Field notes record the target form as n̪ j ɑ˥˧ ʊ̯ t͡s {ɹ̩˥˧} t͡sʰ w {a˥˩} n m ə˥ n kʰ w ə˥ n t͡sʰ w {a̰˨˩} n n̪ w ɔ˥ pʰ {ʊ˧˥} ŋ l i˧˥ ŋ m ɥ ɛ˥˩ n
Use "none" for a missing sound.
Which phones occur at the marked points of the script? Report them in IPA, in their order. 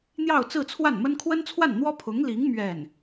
ɹ̩˥˧, a˥˩, a˥˩, ʊ˧˥

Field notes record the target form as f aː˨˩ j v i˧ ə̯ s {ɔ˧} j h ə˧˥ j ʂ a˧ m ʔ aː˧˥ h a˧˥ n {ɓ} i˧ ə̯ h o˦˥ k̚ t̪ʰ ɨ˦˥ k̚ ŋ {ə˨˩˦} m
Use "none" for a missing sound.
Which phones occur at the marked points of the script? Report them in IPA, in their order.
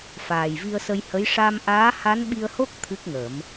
ə˧, ɓ, ə˨˩˦

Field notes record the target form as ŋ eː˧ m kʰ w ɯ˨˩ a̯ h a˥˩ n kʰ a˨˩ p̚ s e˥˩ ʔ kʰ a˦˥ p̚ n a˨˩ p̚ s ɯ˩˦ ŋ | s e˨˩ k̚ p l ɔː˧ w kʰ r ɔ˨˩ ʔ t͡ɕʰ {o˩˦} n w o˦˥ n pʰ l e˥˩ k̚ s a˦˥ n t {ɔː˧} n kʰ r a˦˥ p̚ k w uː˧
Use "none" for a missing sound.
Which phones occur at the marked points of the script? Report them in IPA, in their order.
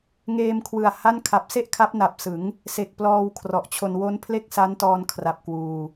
o˧, ɔː˧

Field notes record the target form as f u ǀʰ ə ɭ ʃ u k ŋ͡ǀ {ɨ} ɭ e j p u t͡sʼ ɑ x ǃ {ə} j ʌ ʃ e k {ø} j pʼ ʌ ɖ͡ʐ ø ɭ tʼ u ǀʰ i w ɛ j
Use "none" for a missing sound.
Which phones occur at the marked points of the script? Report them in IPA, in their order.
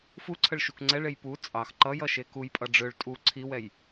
ɛ, ʌ, u

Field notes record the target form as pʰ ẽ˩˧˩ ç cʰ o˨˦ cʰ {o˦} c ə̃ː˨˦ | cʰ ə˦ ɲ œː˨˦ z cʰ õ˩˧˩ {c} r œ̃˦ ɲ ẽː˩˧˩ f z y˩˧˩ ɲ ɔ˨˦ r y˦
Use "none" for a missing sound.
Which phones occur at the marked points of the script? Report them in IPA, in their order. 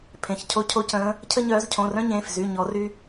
o˨˦, none

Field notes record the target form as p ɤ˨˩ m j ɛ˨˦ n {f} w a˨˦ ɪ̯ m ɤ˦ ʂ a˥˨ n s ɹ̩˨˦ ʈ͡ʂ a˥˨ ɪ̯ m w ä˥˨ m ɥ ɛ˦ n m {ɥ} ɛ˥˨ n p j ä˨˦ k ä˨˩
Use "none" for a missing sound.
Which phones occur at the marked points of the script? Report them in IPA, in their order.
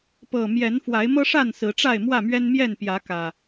f, j

